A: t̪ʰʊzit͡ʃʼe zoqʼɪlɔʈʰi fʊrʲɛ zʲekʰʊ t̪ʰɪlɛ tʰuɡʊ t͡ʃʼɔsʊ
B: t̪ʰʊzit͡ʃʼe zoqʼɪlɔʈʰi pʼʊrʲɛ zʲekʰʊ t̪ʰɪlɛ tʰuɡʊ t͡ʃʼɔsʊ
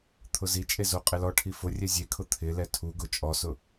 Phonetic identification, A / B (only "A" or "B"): A